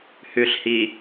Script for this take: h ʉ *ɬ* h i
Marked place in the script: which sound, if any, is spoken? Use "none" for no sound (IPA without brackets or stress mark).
ɬ